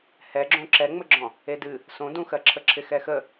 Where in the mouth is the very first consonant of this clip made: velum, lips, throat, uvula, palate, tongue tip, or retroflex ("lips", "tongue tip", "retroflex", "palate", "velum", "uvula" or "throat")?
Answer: throat